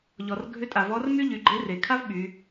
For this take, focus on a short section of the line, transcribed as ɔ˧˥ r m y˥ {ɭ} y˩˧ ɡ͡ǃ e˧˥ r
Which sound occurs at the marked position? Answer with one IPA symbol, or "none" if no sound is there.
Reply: ʎ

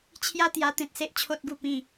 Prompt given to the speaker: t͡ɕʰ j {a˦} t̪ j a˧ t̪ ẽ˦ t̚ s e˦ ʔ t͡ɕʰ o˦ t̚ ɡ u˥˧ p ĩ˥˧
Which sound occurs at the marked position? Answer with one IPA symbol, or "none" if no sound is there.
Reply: a˦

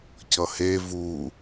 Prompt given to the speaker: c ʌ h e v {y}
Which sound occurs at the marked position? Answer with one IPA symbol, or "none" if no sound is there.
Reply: u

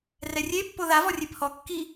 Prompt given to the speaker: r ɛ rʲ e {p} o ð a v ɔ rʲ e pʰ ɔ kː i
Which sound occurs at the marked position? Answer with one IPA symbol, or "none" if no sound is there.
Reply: pː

